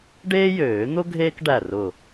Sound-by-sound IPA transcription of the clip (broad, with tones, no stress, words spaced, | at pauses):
ɖeː˥jøː˨˩˦n̪ʊ˥ ɡʱeː˥kɖæ˧˩ rʊ˧˩